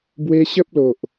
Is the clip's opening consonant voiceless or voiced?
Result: voiced